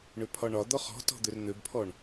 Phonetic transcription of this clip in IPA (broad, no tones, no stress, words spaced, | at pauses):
ɳøpʰɒɳɒd̪ɔ χɔ̤tɔ̤ d̪ørn̪øbpʰɔɳ